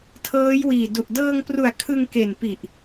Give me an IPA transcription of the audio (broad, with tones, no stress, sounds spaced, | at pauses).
tʰ ɤː˦˥ j w iː˨˩ d u˨˩ ʔ d ɤː˧ ŋ p r u˨˩ a̯ kʰ ɯ˧ ŋ k e˨˩ n p i˨˩ ʔ